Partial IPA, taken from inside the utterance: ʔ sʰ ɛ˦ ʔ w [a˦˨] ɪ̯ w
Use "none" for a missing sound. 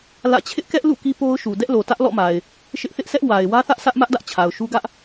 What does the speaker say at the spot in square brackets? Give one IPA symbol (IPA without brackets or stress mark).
a˨